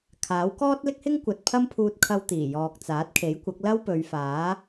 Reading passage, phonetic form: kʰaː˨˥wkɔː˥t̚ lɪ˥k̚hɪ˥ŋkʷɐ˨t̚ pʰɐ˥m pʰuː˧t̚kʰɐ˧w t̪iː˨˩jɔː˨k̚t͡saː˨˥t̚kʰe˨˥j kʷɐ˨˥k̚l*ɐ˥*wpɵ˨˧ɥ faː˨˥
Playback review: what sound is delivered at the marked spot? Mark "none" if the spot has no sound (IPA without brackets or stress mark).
ɐ˥